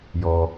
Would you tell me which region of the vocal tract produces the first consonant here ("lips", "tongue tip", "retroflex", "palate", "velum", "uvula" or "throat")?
palate